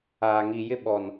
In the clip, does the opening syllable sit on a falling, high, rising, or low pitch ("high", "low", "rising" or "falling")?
low